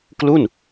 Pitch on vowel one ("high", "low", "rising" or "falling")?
falling